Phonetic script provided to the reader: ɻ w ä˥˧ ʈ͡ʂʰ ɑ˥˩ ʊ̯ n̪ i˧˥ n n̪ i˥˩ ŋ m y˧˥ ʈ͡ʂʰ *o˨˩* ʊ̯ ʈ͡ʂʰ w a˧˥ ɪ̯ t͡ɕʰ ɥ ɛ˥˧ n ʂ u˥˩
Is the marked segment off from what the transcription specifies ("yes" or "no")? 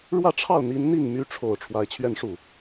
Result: no